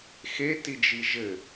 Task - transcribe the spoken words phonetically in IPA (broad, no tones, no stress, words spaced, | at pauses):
xetid͡ʒi ʒɘ